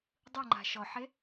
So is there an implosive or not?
no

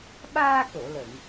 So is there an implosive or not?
yes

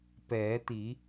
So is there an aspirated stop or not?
no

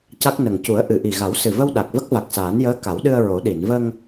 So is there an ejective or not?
no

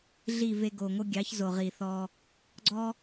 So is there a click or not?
yes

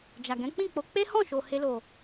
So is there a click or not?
no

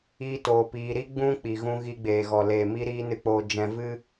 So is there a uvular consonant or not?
no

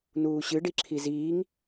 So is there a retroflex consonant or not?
yes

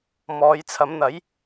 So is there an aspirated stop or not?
yes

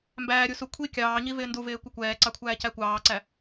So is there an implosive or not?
no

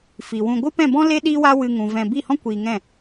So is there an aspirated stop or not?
no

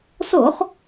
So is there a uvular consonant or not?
yes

